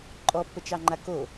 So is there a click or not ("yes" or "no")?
yes